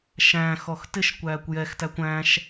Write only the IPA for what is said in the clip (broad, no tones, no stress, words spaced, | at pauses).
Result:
ʃæ̃xɔx tɪʃkʷæːkʷ jɛxtækʷ æ̃ʃ